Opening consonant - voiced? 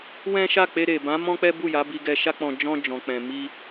yes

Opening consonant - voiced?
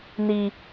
yes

